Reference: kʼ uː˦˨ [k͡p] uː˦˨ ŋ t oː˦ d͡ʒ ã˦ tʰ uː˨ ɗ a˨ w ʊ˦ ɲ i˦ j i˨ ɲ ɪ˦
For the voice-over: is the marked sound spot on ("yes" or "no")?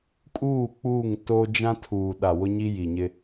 yes